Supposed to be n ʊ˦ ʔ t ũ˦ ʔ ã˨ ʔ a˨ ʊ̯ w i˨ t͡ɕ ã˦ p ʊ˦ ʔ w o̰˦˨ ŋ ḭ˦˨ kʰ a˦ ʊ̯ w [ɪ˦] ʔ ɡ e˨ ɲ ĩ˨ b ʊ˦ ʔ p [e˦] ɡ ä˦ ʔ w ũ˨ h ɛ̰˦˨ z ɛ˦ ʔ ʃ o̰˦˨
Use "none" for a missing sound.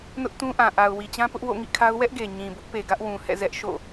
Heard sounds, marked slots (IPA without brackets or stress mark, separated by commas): ɛ˦, e˨